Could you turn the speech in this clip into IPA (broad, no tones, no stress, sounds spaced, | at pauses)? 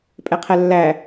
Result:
pʼ ɛ qʰ ɛ lː æ